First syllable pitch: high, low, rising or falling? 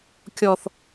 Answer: high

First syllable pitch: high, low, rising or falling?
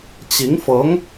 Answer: rising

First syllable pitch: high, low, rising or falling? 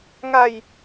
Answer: low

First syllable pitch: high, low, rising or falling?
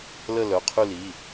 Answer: falling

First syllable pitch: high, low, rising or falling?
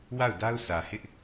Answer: falling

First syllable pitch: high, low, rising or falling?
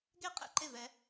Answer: falling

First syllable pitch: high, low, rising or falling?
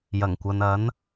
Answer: low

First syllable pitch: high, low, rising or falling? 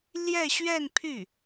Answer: falling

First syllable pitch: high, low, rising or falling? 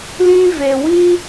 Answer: high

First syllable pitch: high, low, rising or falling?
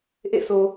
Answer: falling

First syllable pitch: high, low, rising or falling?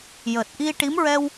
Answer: low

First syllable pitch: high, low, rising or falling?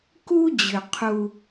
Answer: high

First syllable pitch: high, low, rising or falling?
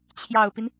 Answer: low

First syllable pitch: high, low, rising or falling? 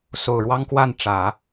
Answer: low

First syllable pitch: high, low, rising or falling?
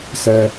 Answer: high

